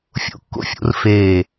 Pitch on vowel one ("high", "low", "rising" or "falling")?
high